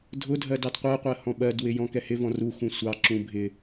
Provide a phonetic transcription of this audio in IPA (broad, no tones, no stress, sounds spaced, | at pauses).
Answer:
dʱ ʊ dʱ ɜ d ɑ d qʷ ɜ qʷ ɜ h ɔ̃ ɓ ɜ d w ɪ j ɔ̃ k ɛ h ɪ v ɔ̃ r u x ũ sʷ ɑ ǁ ũ bʱ ɪ